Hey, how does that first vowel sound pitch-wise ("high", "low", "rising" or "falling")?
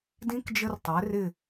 rising